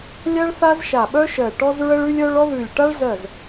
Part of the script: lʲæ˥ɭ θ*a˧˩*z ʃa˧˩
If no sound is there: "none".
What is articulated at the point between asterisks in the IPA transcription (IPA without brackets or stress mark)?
a˥